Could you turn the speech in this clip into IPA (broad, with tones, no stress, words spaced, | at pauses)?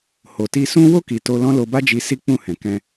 ho˨ti˧sũ˦ wo˦˨ki˨ to˧lɔ̃˦ lo˧ba˦d͡ʒi˧ si˦k͡pũ˦˨hɛ̃˨kɛ̃˧